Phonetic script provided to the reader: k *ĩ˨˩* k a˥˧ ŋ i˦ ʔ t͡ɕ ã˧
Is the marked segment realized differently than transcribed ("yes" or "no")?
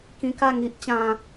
yes